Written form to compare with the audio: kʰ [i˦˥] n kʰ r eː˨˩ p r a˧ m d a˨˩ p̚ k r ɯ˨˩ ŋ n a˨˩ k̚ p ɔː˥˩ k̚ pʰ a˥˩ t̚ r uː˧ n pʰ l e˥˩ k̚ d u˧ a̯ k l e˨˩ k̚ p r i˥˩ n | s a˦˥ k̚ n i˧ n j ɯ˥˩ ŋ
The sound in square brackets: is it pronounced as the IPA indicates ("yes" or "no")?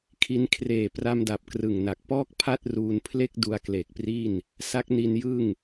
yes